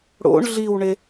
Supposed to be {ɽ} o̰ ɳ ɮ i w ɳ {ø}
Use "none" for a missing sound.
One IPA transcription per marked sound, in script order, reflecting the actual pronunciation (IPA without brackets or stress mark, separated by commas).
ɽ, e